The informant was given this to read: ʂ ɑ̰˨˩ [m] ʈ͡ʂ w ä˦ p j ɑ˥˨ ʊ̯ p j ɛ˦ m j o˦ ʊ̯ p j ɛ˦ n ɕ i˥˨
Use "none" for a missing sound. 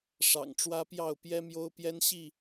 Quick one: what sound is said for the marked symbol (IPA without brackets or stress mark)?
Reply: ŋ